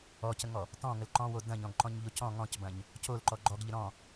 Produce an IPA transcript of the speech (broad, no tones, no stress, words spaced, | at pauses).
ɔcəŋɔ | tɔ̃ŋəl ǃɔ̃wo dɐ̃ɲɔ̃ɡǃɔ̃ɲʎo cɔ̃ ŋɔ̃cbɐ̃ɲ | colǃɔ ɡ͡ǃɔɡʎə ɾɔ̃